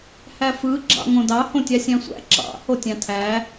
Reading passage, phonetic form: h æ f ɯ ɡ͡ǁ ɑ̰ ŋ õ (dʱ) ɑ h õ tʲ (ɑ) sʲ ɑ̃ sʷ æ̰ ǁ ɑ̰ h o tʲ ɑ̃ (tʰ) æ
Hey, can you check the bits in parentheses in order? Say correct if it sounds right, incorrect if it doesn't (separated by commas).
incorrect, correct, correct